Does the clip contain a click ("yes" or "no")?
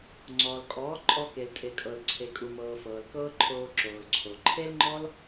yes